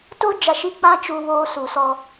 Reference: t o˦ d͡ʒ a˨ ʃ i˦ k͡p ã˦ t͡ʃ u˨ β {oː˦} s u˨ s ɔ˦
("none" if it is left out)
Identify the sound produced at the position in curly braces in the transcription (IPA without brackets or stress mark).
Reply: oː˦